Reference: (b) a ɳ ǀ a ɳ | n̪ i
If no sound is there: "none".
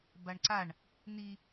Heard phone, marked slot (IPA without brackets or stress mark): b